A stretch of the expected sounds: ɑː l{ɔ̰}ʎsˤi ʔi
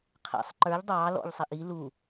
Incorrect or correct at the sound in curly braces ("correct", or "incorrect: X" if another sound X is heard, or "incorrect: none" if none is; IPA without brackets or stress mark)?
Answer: correct